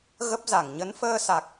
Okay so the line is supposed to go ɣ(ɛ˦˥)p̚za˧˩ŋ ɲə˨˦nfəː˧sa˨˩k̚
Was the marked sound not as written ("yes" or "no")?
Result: yes